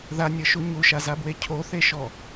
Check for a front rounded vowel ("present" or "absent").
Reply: absent